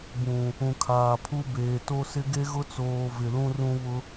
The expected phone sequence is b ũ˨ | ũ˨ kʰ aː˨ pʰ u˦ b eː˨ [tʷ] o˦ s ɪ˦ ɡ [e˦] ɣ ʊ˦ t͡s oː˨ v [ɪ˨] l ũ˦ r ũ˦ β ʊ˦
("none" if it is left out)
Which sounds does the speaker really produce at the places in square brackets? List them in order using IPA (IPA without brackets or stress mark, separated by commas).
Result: t, e˦, ɪ˨